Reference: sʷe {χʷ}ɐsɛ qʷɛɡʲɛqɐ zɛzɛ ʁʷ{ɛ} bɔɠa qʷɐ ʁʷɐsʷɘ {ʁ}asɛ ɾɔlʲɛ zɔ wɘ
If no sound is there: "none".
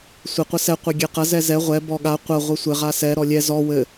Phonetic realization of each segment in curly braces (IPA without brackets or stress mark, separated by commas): qʷ, ɛ, ʁ